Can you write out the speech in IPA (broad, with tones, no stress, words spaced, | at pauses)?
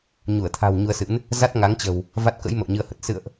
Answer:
ɲu˧˩ə̯t̪ʰa̤˨˩w ɲu˧ə̯sɨ̰˧˥n | za˦˥t̚ŋa˨˦ŋt͡ɕə̤˨˩w | va˦˥t̚kə̰˧˥j mə̰˧˨wɲɨ˧ə̯hə˨˩t̚ sɨ̰˧˨ə̯ʔ